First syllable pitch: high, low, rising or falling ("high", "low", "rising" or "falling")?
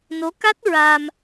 rising